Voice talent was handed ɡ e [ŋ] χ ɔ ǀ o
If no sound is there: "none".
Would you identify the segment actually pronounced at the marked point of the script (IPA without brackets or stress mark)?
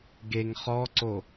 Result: ŋ